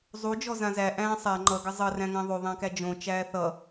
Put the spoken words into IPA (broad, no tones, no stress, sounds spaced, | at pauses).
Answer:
zˤ u d͡ʒ ɔ z ã z æ ʔ æ̃ː sˤ æ ŋ͡ǃ ʌ ɡ ə zˤ ʌ r æ̃ ŋ æ̃ ðˤ o ðˤ æ̃ k æ d͡ʒ õ t͡ʃ æː θ ʌ